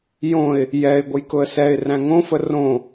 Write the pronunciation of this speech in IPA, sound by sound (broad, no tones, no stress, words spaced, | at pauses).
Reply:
jõɪ̯ | jɛɪ̯ ɡʷəjkʊə̯sɛɪ̯ræ̃ ŋõfə rõ